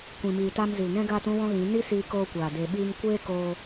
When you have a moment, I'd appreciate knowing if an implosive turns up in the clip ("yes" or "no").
yes